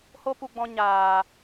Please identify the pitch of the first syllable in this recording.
high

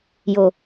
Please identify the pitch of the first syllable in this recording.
low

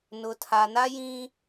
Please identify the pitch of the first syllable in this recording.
low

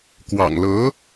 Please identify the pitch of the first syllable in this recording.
low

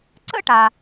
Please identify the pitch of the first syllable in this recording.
high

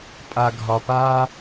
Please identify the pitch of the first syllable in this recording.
low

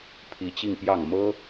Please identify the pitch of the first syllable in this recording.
rising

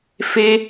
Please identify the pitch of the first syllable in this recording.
high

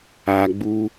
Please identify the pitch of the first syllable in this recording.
low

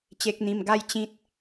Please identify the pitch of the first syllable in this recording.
low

